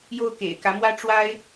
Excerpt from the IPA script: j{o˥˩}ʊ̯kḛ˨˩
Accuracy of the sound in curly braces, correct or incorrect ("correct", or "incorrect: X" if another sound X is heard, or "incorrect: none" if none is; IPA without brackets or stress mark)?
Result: correct